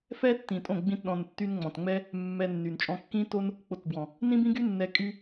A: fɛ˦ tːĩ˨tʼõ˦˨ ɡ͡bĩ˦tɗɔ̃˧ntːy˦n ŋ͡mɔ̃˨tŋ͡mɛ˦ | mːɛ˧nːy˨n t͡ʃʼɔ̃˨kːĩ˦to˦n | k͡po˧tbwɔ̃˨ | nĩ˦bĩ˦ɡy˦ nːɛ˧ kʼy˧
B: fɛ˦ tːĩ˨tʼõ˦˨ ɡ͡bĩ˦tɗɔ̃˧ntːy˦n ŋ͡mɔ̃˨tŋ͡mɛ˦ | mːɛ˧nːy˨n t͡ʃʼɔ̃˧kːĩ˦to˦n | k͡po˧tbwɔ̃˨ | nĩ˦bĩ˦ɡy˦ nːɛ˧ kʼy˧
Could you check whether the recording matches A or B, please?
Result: B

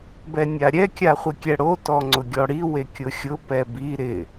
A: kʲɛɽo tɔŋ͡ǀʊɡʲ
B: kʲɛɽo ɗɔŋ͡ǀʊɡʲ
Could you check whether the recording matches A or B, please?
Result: A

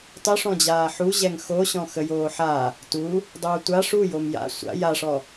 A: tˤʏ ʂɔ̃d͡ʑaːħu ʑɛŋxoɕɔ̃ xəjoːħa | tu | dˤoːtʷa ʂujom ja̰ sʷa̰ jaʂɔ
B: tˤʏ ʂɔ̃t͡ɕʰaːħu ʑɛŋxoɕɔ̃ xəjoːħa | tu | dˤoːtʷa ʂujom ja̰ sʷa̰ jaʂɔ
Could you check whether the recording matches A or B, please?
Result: A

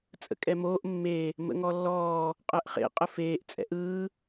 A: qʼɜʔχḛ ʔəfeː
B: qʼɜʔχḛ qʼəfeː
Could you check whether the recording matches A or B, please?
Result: B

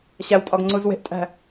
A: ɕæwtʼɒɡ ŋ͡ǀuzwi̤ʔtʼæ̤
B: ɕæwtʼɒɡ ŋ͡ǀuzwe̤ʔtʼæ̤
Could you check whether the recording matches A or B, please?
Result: B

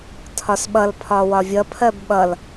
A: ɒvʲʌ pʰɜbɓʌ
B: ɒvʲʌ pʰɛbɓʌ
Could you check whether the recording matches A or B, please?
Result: A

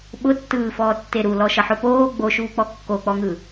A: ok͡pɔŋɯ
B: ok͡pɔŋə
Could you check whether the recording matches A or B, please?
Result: A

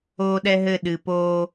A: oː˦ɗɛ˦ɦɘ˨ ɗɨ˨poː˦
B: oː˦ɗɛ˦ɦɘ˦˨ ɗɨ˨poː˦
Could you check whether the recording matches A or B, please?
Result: B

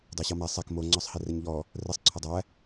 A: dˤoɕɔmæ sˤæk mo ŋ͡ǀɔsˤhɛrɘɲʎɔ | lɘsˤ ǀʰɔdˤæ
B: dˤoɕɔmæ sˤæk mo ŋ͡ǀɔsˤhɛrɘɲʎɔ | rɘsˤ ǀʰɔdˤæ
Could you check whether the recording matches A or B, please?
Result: B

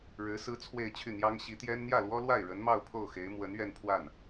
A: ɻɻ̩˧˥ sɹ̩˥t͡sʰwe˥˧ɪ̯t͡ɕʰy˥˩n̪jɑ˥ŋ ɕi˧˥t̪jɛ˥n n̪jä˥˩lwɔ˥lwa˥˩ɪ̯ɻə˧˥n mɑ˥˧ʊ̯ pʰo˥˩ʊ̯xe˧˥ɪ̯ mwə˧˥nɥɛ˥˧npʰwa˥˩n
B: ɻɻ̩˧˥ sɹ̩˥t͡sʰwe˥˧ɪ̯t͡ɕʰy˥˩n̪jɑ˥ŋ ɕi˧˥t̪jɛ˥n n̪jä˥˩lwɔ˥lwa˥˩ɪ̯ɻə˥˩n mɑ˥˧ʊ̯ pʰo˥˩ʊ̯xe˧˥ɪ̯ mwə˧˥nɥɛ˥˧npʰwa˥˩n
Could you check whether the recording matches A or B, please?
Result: A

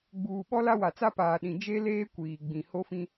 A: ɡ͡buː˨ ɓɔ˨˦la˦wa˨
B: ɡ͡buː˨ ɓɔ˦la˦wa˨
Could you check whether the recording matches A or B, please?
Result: B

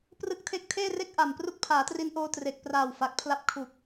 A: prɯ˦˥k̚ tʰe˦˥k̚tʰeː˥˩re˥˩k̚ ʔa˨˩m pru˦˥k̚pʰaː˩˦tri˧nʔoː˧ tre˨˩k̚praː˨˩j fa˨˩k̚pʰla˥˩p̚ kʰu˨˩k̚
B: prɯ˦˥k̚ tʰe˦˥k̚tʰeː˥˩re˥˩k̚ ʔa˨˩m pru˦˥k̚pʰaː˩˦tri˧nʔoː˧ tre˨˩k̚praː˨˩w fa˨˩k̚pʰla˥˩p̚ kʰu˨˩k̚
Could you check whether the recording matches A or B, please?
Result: B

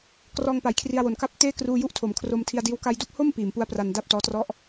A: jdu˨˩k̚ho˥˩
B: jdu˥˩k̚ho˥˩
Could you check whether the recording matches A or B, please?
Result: B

